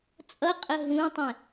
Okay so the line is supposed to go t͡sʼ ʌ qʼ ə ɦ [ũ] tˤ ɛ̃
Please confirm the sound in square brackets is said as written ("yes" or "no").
yes